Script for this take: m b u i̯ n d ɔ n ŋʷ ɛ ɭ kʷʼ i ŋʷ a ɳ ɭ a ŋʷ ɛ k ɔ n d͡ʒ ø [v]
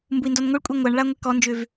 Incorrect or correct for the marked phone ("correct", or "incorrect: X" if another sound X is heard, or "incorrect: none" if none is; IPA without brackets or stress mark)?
correct